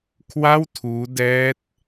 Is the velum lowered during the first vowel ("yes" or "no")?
no